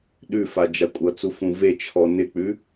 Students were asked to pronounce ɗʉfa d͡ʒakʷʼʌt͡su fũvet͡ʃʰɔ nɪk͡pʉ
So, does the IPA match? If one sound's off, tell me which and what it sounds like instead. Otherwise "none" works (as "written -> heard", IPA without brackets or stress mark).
none